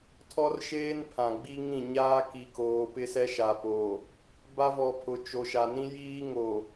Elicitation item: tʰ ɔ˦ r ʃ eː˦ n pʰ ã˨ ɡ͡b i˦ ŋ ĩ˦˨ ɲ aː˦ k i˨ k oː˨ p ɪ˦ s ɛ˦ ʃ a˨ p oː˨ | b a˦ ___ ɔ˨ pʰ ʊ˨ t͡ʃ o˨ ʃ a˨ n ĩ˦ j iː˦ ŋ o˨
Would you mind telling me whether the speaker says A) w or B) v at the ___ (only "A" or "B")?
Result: B